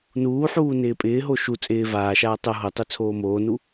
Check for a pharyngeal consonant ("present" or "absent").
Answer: present